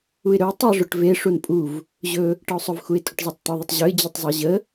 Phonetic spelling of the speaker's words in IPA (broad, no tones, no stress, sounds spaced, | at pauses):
u ɪ̯ ɾ ɵ ʊ̯ tˤ e ʐ ʊ ʈ v e ʂ u n pʼ u v | ʑ ɵ | ʈ ə ʊ̯ sˤ ɵ v x u ɪ̯ tʼ ʊ ʈ zˤ e tˤ t̪ ʊ ðˤ ə tˤ ʑ ɵ ɪ̯ d͡ʑ ɵ tˤ zˤ e ʑ ə